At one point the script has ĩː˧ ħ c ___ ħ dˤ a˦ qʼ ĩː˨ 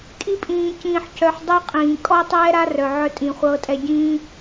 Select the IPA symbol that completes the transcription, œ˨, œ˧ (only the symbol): œ˧